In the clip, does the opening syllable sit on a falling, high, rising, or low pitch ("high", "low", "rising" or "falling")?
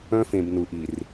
high